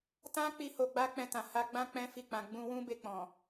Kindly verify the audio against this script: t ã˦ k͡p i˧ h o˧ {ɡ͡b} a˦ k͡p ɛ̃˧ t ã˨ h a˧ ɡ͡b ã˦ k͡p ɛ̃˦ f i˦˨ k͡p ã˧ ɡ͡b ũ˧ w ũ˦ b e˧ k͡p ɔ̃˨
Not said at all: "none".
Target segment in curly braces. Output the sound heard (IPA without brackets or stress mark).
ɡ͡b